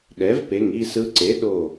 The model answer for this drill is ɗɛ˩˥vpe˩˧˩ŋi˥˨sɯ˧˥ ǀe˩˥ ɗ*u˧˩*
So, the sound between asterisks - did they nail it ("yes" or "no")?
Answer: no